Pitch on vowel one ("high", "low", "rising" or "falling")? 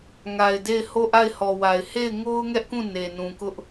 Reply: low